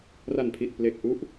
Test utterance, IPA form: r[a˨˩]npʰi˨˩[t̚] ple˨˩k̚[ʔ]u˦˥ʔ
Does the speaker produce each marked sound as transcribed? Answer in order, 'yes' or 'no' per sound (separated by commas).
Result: yes, yes, yes